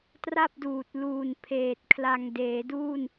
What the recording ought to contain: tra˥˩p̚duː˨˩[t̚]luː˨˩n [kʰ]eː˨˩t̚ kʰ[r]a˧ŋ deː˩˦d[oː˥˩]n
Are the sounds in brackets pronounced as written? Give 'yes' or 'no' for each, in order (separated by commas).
yes, no, no, no